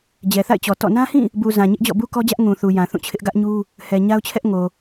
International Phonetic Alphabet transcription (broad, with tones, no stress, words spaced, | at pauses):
d͡ʑɛ˨θa̰˦˨ɪ̯t͡ɕɔ˨ tɔ̰˦˨ nã˦hĩ˦˨ | bu˨ zã˨ɲɪ˦ʔd͡ʑɔ̰˦˨ bu˦kɔ˦d͡ʑä˦ʔ ŋũ˨θu˨ jã˨θũ˦˨t͡ɕʰɪ˦ʔ ɡä˦ʔɲu˦ | hɛ˨ ɲa˦ʊ̯t͡ɕʰɛ˦ʔŋo˨